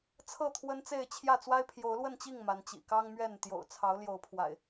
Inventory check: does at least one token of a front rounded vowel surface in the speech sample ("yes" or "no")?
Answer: no